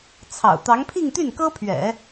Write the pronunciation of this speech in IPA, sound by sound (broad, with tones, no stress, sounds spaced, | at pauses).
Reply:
t͡sʰ ɑ̰˨˩ ʊ̯ t̪ ɑ˧˥ ŋ pʰ i˥˧ ŋ t̪ y˥˩ n k ɤ˥ pʰ ɥ ɛ̰˨˩˦